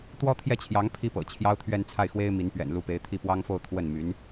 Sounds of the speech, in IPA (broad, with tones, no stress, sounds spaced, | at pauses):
t̪ w ɔ˥ t̪ʰ j ɛ˥˩ t͡ɕʰ j ɑ˧˥ ŋ pʰ i˥ p ɤ̰˨˩ t͡ɕʰ j ɑ˥ ʊ̯ t̪ʰ ɥ ɛ˥˧ n t͡sʰ a˥˩ ɪ̯ x w e˥ ɪ̯ m i˧˥ n p ɥ ɛ̰˨˩ n l u˧˥ p e˧˥ ɪ̯ t̪ʰ i˥˩ p w ɑ˥ ŋ f o˥˧ ʊ̯ t̪ʰ w ə˥˩ n m y˧˥ n